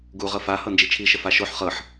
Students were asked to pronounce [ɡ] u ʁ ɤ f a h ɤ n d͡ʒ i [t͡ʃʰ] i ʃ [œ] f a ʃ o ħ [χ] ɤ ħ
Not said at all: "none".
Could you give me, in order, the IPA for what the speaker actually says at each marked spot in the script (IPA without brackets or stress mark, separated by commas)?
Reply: ɡ, t͡ʃʰ, ə, χ